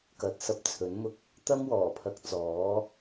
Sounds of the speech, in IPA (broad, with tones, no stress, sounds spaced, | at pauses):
k ɐ˨˥ t̚ s ɐ˧ p̚ t͡sʰ ɵ˨˥ n m ʊ˥ k̚ | t̪ ɐ˥ m w ɔː˨˩ pʰ ɐ˨ k̚ t͡s ɔː˨˥